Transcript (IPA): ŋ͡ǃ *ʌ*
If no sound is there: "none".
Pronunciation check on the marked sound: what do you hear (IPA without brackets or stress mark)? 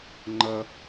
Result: ʌ